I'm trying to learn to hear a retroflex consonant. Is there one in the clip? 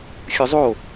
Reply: no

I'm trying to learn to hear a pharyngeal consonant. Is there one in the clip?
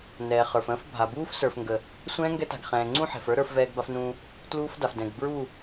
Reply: yes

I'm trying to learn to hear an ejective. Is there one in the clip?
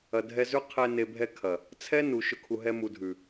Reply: no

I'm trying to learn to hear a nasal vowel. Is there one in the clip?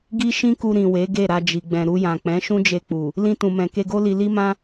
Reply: yes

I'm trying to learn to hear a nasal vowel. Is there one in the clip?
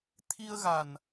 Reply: no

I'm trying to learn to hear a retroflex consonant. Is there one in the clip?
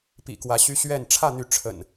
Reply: yes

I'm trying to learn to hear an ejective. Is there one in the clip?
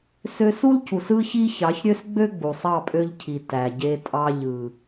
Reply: yes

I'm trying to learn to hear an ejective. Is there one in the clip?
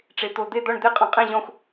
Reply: yes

